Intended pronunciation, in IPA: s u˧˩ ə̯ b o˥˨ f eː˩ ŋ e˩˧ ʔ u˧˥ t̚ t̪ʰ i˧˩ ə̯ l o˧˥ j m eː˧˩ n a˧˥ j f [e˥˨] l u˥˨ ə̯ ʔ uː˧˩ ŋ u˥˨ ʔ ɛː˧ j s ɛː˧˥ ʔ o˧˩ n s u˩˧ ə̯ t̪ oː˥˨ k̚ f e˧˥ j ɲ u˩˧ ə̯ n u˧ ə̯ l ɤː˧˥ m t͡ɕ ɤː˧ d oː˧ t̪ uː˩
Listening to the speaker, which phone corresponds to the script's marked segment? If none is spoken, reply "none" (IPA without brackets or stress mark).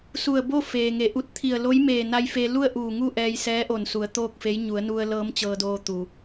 e˧